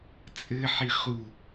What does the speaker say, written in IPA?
t͡sʼɘħi χu

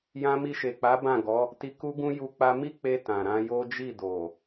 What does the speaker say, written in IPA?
jã˧mi˧ʃe˨k͡pa˨˦ bã˦˨ɡɔ˨˦ | ti˧ku˦ɡũ˦ ju˧ k͡pa˦ mi˦k͡pe˧ tã˨ɾã˧jo˦ d͡ʒi˦˨do˨

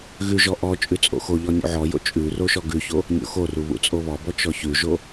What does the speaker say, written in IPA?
ɣʉʒɔ ʔɔ t͡ʃʼʉt͡sʼo̰xoʎɔ nʲṵʕɔjo̰ t͡ʃʼʉ roʃɔɡʉço | nʲo̰xoru βṵt͡sʼoβɔbɔ t͡ʃɔçʉʒo

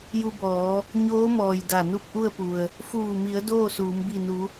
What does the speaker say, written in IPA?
ju˧bɔː˩˧ | ɲoː˧˥mɔː˩j da˧˩nu˥˨p̚ʔu˥˨ə̯pu˩ə̯ | fuː˧˩mi˩˧ə̯ doː˥˨suː˩˧m bi˧˩nu˩˧

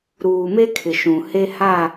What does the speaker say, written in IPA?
ɾuː˨me˦kʰɪ˨ ʃũ˨ he˦ha˦˨

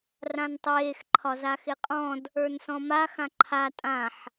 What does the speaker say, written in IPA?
rãntˤeːx ǃʰɒzaxeqʼɔ̃d | ə˞nsɔ̃ma xãǃʰa tʼãħ

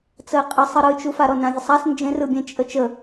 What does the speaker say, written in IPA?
t͡səɪ̯qʼə sˤɯɾɯt͡ʃufa ɾɔnãvʲəsˤas nd͡ʒẽrɯbʲẽ t͡ʃʼət͡ʃə

